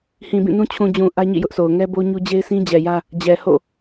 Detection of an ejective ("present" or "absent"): absent